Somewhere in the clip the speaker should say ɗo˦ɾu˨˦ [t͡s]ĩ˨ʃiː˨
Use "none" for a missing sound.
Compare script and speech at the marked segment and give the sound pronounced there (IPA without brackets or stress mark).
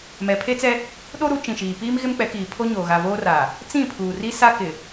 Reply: t͡ʃ